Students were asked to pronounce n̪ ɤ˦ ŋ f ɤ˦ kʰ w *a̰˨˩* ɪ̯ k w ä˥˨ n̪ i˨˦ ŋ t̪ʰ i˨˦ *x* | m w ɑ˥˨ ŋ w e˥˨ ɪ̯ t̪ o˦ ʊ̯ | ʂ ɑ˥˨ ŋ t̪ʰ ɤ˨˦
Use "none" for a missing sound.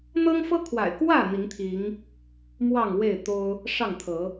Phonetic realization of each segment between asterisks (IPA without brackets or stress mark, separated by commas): a̰˨˩, ŋ